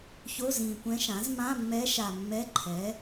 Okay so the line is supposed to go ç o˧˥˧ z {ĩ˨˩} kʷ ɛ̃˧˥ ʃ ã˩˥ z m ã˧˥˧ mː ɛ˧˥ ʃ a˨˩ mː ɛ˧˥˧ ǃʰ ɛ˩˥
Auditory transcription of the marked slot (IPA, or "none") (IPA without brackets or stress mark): ĩ˨˩